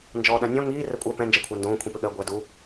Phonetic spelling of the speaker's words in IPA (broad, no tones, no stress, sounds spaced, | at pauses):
n d͡ʒ ɔː ɗ ã nʲ ɔ̃ ŋ iː r ɛ kʷʼ ɜ p ɛ̃ n d͡ʒ ɜ kʷʰ a n d õː kʷʰ ĩ p ʏ ɠ ɜ ɡʷ ɛ d u